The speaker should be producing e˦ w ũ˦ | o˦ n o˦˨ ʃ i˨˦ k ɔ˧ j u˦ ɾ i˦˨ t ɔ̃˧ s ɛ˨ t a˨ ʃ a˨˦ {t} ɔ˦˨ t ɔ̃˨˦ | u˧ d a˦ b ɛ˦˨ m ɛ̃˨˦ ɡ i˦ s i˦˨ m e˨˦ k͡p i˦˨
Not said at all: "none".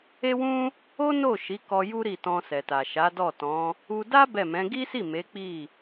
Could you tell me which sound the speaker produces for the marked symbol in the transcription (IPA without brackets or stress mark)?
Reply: d